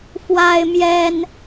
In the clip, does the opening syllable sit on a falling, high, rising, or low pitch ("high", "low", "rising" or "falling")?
high